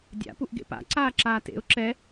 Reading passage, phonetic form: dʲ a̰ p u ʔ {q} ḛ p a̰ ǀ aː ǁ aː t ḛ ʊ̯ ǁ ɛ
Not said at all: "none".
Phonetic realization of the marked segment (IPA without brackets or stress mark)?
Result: ɡ